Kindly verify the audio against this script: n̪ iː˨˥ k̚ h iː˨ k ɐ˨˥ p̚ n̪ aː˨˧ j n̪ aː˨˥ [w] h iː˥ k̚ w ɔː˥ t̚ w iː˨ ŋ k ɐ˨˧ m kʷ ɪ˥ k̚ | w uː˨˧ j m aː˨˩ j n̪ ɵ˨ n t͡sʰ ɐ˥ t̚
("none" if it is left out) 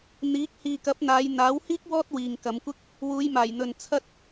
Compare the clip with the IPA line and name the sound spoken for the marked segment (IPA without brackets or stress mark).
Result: w